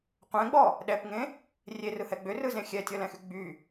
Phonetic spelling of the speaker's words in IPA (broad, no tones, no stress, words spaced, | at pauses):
qʷɛ̃ɡ͡bɔ | ɗɛpŋẽ | rʲerɯhɛ ɡ͡bʏrɯzẽ xʲɛtʲɔlɛ̃xy ɡ͡by